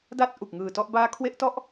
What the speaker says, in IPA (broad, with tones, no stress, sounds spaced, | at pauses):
d a˥˩ t̚ ʔ u˨˩ k̚ ŋ ɯː˨˩ t ɔ˥˩ ʔ b aː˦˥ kʰ w e˦˥ ʔ t ɔ˥˩ ʔ